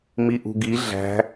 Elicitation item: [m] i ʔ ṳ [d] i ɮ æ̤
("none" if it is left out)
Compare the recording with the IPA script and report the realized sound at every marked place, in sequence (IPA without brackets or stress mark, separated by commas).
m, ɡ